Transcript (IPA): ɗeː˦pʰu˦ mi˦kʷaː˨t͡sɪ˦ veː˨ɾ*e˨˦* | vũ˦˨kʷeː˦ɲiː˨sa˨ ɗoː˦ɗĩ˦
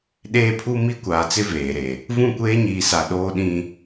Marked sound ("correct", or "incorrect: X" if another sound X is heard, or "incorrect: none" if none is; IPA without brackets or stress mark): incorrect: e˨